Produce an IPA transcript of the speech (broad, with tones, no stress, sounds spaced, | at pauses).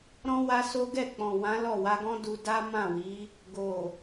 ɾ ɔ̃˦ w a˧ s o˦ ɡ ɛ˦˨ k͡p ɔ̃˨ w ã˨˦ l ɔ˦˨ w a˧ ɡ ɔ̃˦ d u˧ d a˦ m ã˦˨ w i˨˦ | ɡ o˨